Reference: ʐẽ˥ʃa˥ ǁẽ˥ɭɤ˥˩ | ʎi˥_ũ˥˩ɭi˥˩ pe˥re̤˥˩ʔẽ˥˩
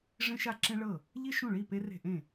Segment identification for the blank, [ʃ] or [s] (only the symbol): ʃ